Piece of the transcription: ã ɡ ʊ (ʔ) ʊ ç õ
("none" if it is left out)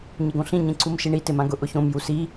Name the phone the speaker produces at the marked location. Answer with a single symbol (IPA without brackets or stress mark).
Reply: ʔ